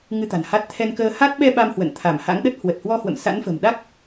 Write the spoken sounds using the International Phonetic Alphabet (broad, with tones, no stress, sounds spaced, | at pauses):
ŋ ɨ˧ t̪ a̤˨˩ n h a˦˥ t̚ t̪ʰ ɛ˧ n k əː˧ h a˦˥ t̚ ɓ ɛ˧ ɓ a˧ m h w ə̰˧˨ n t̪ʰ a˧˩ m h a̰˧˥ ŋ ɗ ə˦˥ t̚ h w ə˨˩ t̚ h w ɔ˧ h w ə̰˧˨ m s a̰˧˥ n f ə̤˨˩ m ɗ a˦˥ k̚